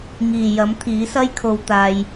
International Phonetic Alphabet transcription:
ŋ iː˨˩ j ɐ˨˥ m t̪ʰ iː˨˥ s ɐ˥ j kʰ o˧ w t̪ aː˧ j

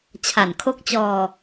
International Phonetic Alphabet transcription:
t͡ɕʰ a˨˩ n kʰ o˦˥ k̚ t͡ɕ ɔː˧

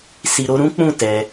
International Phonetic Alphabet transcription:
s i˧ ɾ o˦ ɾ ũ˦ k͡p ũ˦˨ t ɛ˧

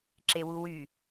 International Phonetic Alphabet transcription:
ǁ e w u w y

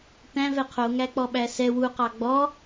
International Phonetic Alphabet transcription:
t æ̃ v ɛ qʰ o ŋ æ k͡p ɔ ɓ æ s ɛ w u q ɑ ɡ͡b ɔ

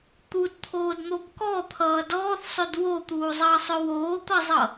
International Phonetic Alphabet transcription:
t̪ u d t̪ʰ oː d n̪ o b k ɔ t̪ʰ ʌː d ɔː θ sˤ ɵ d w o t̪ uː zˤ ʌː sˤ ɵ w oː t̪ ʌ zˤ ʌ

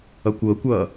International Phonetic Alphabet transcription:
ʌ kʷ ɤ kʷ ʌː

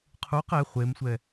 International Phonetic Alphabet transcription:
qʰ u q ɛ χʷ e m sʷ ɛ

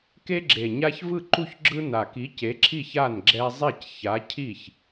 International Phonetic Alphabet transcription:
k e˦ ɡ͡ǁ e˨˩ ɲ a˦ ç v ɯ˥˩ ǃ u˥˩ ç ɡ͡ǁ ɯ˦ n a˨˩ k i˨˥ c e˨˥ ǁʰ i˥˩ ç a˥˩ n ɡ͡ǁ ɛ˦ zˤ ɛ˥˩ c ç a˨˥ cʰ i˥˩ ç

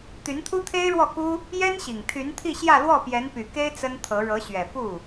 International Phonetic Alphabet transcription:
t̪ y˧˥ n t̪ʰ u˥ t̪ʰ e˥ ɪ̯ ɻ w ɔ˥˩ k u˥ | j ɛ˥ n ɕ i˨˩ ŋ t̪ʰ y˧˥ n t̪ʰ i˥˧ ɕ j ä˥˧ l w ɔ˥˩ p j ɛ˧˥ n p y˨˩ k e˥ ɪ̯ t͡s ə˥ n t̪ʰ ɤ˧˥ ɻ ɤ˧˥ ɕ ɥ ɛ˨˩ f u˥˩

